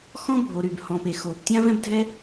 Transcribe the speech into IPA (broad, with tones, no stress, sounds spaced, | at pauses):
x ɔ̃˥ bʱ o˩ ɾ y˩ b h ɔ̃˩ p e˩ x oː˩ p tʲ ã˥ v ɛ̃˥ b dʱ ɛ˥